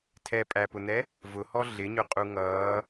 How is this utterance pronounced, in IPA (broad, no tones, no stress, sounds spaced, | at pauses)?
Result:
tʰ ɛ pʼ æ p ʊ n̪ ɛ | v ʊ h ɔ ɮ ɪ ɲ ʊ qʼ u ŋ ʌː